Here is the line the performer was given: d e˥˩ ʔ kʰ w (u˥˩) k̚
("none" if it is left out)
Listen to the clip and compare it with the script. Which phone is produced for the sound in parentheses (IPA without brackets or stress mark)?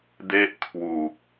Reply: u˨˩